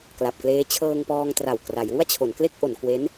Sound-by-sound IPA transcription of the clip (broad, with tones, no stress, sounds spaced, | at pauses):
k l a˨˩ p̚ k l eː˦˥ t͡ɕʰ ɤː˧ ŋ p ɔː˧ ŋ t r a˨˩ w k r a˩˦ j w u˥˩ a̯ t͡ɕʰ o˩˦ n k l e˥˩ k̚ ʔ o˩˦ n k w e˦˥ n